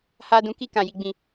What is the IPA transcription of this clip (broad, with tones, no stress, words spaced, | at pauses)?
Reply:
ha˧ dũ˧ki˦ kã˦˨ji˨˦ɡ͡bĩ˦˨